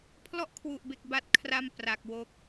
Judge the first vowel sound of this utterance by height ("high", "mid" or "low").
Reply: mid